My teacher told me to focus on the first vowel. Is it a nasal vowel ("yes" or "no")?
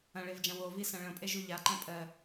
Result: yes